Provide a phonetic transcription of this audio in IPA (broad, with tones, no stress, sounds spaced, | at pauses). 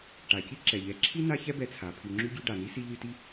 ʈ a˩ c i˥ ǁ ɛ˩ ʎ ɛ˨ ǁʰ i˥ n a˦ ç ɛ˥ b ɛ˨ t͡sʰ a˩ pʰ y˨ ŋ͡ǁ y˥ ɟ y˦ ɖ a˩ n i˥ s i˦ ʎ y˦ t i˥